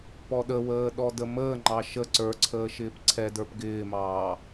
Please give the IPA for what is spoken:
pɔɗəwəː ɗɔdəməːŋ͡ǃɑ ʃə ǀə˞ǀʰəː ʃɪːpǀʰɛdə˞p ɡɪːmɑː

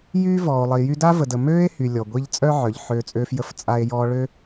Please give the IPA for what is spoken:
jyː˥vɔː˨o̯lˠi˨ jy˦da˥və˨də˨ møː˥e̯ hy˨lʲɔ˩ ɡʷi˦ʎt͡sʼœ˥ʕœ˩ʎ ħøː˦t͡sʼøː˥fjə˥f t͡sʼa˦e̯jɔː˦ ɭø˥

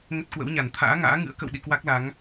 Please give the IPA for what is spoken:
ŋə˦˥t̚kwə̰˧˥wɲa˧˩n t̪ʰa̰ː˧˥ŋa̰ː˧˥ŋɨ̰˧˥ə̯ kə̰˧˨wɗḭ˧˨ kwa˦˥k̚la˨˦ŋ

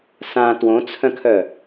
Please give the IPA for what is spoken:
sã twõt͡sʰœ̃kʰœ

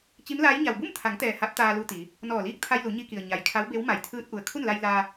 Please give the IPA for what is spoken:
t͡ɕi˧˥mlaː˧˥j ɲa˩wbu˥˨mt̪ʰa˩˧ŋt̪ɛː˩ ha˧˥p̚t̪aː˧lu˧t̪i˩˧ | nɔː˧˩liː˥˨k̚t̪ʰa˧jlu˩˧ ɲi˧ki˩ə̯ ɲa˩jkʰa˧˥wbe˧˥w ma˩jt̪ʰɯː˧t̚ ʔu˧˩ə̯ kʰu˥˨nla˧j laː˧

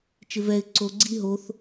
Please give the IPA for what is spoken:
t͡ʃɪvɛɪ̯ ǀo ɡ͡ǀi ɦoθ

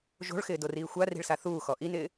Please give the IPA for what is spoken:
ʒo̤ɭxɪːdoriː xʷari̤ɭsa θuːxɔ ʔinɪː

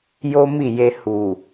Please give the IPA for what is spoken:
jo˦mi˦˨je˧ hu˨

